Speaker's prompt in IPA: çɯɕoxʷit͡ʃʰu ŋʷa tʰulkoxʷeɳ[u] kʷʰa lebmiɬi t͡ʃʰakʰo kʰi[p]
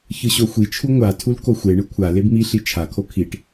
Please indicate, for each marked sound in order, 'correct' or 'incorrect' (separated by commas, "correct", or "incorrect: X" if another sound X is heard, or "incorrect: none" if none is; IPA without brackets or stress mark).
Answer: incorrect: ɯ, incorrect: ʈ